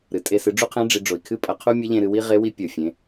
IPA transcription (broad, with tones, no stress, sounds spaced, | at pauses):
ɾ ɨ˩ tʼ e˧ s ɨ˩˧ ɖ͡ʐ u˥ qʰ ẽ˧˥ ɖ͡ʐ i˩˧ ɖ͡ʐ o˩ i̯ kʰ ɨ˥ pʼ ɐ˩˧ qʰ u˥ mʲ ɐ˧˥ ʎ ẽ˧ ɾ ɨ˧ w i˥ ʁ e˧˥ w i˧˥ pʲ o˩ fʲ ẽ˩˧